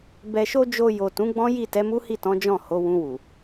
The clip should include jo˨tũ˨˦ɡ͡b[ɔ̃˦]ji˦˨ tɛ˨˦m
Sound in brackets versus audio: correct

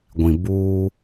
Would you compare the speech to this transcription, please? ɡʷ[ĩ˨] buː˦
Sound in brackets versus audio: correct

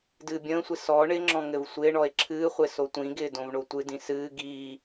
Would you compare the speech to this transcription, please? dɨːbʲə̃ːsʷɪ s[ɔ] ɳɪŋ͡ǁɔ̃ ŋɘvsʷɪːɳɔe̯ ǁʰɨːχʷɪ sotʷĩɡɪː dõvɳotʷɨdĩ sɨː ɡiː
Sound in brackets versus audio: correct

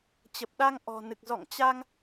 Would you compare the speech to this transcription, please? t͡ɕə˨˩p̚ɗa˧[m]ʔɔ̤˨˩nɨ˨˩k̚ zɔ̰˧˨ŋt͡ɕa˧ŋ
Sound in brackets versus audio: incorrect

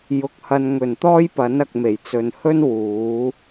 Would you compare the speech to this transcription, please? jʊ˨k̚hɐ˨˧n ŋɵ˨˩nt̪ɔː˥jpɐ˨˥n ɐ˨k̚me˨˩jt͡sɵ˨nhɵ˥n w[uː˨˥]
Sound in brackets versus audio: correct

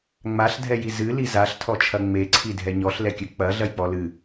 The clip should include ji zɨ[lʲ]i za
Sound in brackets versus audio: incorrect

